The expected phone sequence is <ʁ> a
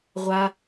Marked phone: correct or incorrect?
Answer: incorrect: ʁʷ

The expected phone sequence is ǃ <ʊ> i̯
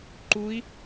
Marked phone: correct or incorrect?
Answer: incorrect: u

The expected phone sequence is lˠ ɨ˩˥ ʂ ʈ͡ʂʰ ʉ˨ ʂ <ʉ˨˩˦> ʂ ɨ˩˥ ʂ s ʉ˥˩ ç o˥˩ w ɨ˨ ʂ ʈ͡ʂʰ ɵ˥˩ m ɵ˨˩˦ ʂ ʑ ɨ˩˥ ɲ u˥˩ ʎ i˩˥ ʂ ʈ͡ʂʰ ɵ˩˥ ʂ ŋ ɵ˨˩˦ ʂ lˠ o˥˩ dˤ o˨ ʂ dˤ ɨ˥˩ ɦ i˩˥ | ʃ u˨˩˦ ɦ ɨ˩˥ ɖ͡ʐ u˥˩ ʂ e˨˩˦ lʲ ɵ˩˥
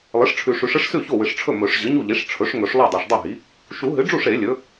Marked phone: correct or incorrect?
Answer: correct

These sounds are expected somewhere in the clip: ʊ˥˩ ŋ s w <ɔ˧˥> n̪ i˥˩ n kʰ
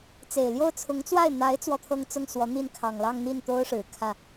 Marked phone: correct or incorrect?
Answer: correct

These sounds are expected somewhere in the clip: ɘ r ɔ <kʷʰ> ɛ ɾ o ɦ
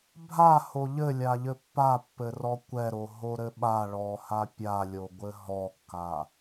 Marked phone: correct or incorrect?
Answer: incorrect: kʷ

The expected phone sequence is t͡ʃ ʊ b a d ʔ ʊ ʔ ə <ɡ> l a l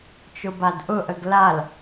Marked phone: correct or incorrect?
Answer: correct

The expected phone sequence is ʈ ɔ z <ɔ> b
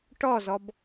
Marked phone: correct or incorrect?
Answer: correct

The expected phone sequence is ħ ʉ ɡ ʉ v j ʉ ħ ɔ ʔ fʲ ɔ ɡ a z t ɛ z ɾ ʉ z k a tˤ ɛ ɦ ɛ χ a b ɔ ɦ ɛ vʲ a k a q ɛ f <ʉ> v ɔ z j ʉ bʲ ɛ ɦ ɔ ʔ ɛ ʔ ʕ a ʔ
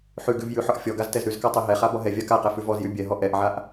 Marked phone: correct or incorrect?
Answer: correct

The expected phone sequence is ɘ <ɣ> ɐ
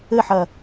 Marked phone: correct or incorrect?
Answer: incorrect: ħ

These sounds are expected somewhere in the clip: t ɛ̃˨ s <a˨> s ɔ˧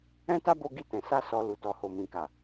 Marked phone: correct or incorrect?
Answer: incorrect: a˧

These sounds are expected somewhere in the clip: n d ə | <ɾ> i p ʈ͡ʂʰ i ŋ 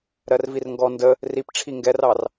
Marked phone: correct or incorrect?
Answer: incorrect: r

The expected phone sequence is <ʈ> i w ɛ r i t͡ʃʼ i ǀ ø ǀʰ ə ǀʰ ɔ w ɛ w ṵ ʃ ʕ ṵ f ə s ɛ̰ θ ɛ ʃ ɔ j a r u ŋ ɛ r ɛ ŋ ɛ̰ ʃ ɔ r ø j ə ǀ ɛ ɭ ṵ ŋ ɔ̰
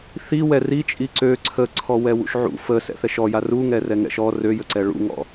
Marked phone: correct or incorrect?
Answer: incorrect: θ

